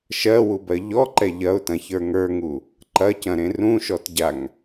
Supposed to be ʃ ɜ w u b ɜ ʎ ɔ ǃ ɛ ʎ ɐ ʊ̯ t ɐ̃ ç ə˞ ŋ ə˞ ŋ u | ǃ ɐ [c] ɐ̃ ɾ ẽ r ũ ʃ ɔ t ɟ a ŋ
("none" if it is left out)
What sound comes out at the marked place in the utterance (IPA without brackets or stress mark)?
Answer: c